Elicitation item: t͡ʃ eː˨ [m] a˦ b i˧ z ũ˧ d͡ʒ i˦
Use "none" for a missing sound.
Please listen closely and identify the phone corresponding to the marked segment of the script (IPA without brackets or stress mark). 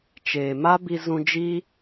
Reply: m